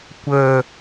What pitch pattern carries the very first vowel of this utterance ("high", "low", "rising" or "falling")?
low